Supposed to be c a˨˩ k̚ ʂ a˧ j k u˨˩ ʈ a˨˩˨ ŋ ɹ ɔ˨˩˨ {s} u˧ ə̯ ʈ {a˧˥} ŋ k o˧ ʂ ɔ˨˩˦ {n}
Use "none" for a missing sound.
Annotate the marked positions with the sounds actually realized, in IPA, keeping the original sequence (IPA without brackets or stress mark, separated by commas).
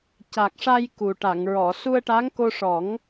s, a˧˥, ŋ